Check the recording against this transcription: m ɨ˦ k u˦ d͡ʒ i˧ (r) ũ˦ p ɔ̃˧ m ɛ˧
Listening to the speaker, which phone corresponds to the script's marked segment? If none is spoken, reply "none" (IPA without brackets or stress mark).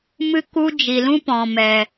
l